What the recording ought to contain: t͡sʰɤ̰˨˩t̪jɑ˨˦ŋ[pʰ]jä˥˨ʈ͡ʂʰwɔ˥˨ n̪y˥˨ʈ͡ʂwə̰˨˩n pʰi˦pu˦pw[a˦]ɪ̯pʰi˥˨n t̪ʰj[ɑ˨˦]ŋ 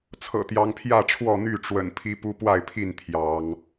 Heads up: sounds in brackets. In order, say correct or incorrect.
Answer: correct, incorrect: a˥˨, correct

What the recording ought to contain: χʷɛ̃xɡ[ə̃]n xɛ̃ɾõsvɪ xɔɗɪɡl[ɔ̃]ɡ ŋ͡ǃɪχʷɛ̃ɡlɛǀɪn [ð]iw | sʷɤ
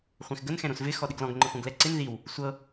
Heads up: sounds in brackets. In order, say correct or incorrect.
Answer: incorrect: ə, correct, correct

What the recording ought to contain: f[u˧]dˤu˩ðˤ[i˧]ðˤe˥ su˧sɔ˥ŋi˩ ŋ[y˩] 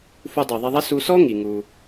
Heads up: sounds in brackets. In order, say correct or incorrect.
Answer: correct, correct, incorrect: u˩

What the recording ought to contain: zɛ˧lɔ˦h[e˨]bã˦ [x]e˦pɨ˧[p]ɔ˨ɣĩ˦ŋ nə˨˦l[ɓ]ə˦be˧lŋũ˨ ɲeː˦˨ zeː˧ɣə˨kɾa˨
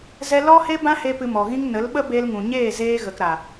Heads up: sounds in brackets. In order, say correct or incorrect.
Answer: incorrect: e˦, incorrect: h, incorrect: m, correct

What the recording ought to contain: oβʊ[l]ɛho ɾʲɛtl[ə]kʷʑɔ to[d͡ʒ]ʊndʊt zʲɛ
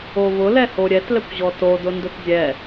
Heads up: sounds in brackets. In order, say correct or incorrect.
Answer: correct, incorrect: ɛ, incorrect: d

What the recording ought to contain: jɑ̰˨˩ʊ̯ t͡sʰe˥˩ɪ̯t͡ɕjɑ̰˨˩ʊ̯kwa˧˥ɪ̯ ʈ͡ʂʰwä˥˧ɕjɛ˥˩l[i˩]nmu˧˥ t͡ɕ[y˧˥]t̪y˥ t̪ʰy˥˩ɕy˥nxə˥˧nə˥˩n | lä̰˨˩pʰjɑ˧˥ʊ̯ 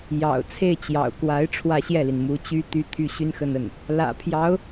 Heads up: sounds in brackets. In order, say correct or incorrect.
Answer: correct, incorrect: y˥

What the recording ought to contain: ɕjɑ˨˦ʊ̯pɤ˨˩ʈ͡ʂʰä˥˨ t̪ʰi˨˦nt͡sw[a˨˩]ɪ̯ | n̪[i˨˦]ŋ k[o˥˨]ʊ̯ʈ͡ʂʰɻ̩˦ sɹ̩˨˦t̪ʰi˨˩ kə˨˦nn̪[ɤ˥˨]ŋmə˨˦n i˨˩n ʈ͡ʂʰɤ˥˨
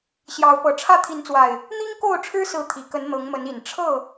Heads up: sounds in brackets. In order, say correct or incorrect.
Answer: correct, incorrect: i˦, correct, incorrect: ɤ˨˦

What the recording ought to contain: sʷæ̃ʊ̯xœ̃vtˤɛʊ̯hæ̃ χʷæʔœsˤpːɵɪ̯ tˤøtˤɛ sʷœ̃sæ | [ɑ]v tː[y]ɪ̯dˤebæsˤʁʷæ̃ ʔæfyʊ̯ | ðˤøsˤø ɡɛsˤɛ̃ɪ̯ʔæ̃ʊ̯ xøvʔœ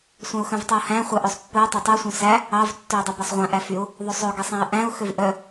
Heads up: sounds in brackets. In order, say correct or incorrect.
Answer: correct, incorrect: ø

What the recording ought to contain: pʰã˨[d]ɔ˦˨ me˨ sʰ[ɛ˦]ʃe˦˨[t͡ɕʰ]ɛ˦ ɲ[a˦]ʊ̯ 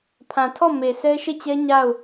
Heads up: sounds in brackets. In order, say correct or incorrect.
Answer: incorrect: tʰ, correct, incorrect: t͡ɕ, incorrect: a˦˨

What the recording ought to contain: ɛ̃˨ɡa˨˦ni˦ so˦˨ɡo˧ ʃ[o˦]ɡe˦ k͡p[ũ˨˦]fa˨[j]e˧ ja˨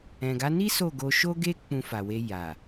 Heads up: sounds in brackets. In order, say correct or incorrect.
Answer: correct, incorrect: ũ˧, incorrect: w

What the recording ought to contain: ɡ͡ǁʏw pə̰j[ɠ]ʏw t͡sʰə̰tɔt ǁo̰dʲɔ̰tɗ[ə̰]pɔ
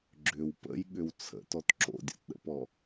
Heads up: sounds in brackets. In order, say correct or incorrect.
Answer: correct, correct

